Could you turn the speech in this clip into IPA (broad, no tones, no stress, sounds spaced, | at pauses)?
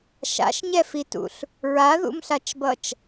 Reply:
ʃ a̰ ʃ ɲ ɛ f i t ṵ ɬ | ɹ a ð ṵ m ɬ a t͡ʃ b ʌ t͡ʃ